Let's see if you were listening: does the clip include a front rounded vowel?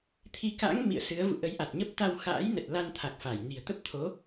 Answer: no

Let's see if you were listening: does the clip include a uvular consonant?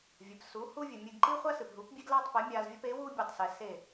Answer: yes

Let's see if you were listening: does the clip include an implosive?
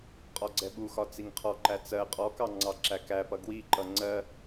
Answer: yes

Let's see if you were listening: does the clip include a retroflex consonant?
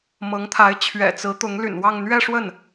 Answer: yes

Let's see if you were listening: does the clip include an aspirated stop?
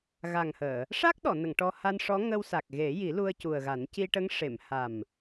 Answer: no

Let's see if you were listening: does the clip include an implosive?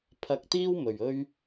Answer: no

